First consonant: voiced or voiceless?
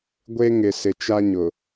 voiced